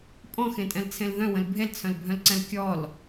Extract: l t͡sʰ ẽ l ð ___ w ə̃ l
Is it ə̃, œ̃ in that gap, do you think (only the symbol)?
œ̃